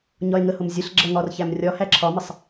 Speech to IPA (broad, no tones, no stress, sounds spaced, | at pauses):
ɲ ɒ e̯ ŋ ə h ʊ m zʲ ə ɬ ɡ͡ǁ ʌ ŋ ɒ r ç æ m rʲ ɒ h æ ǁʰ ɒ m ɪ sˤ